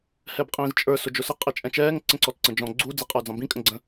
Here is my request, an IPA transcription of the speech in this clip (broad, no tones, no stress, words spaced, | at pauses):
hɛbqʼĩːzt͡ʃʼə˞ sʊd͡ʒʊsə qʼɛt͡ʃʼɛ̃t͡ʃɛːŋ ǀə̃ǀɔtǀə̃d͡ʒɔ̃ ɡ͡ǀu d͡ziqʼə˞d͡zɑ̃bĩ kʼə̃ɡ͡ǀə̃